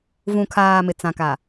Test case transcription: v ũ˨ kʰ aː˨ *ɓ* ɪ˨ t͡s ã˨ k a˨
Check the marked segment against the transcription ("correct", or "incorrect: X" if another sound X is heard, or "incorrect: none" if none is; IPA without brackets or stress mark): incorrect: m